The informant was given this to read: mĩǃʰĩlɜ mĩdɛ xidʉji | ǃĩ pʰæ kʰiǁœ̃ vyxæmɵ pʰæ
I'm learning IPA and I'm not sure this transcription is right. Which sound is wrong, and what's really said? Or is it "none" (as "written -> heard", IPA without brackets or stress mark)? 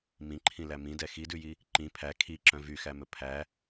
ɜ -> æ